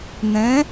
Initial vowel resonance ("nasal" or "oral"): nasal